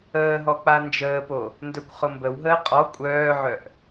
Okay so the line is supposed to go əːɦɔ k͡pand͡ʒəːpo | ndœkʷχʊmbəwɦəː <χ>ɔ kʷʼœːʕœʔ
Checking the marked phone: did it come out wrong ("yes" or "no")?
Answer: yes